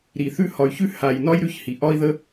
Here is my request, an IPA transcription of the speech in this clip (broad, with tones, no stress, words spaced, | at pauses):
ɾi˨θʉ˧ hɒ˨y̯çʉ˧ ha˨j nɒ˦jɾʉ˧çhi˨ ʔɒ˧i̯ðə˧